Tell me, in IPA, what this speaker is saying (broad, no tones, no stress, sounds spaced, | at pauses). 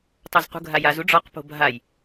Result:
tˤ o z q ṳ ɡʱ a j a z u ɖ͡ʐ ɔ q p o̤ bʱ a j